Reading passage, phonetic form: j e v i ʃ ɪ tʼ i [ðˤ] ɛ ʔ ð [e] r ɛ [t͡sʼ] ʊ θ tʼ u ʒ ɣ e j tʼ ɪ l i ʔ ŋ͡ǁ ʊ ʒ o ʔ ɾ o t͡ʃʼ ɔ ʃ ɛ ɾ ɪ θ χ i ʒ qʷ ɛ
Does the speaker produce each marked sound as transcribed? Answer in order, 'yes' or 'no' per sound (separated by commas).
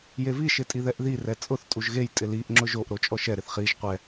no, no, yes